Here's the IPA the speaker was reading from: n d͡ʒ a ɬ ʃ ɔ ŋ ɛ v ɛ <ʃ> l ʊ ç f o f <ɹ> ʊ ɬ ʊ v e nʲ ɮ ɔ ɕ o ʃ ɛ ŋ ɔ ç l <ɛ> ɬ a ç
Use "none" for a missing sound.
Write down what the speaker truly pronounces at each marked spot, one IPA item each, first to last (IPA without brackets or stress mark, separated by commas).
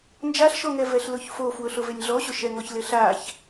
ɬ, w, ɪ